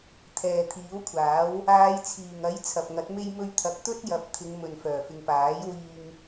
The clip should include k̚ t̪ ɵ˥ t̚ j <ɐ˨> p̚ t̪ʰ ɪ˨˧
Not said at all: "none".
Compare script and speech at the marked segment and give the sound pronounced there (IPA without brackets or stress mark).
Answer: ɐ˨˥